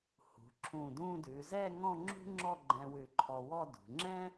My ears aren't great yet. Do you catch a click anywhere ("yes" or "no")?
yes